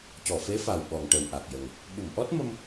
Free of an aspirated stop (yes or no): yes